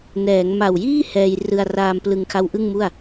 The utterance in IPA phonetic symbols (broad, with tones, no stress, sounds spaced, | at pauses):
n ɛː˩˦ ŋ m a˨˩ w j iː˥˩ h ɛː˧ j r ɯ˧ a̯ r aː˧ m p l ɯ˧ ŋ kʰ a˦˥ w ʔ ɯ˥˩ ŋ m u˥˩ a̯